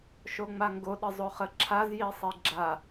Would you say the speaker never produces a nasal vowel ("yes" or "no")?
yes